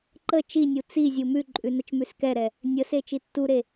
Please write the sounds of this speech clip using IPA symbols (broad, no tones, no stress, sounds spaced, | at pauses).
ǃ ə t͡ʃ i nʲ u t͡s i zʲ u m ʉ ǃʼ ʉ n ə t͡ʃ m ʉ s k ɛ ɾ ɛ | nʲ ə s e t͡ʃ i tː u ɾ e